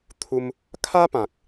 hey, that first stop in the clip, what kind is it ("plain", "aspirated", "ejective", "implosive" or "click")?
aspirated